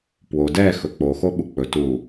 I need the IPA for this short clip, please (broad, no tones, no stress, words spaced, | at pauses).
pwo dɛ xɵk͡poxo ɓuk͡pɵ tu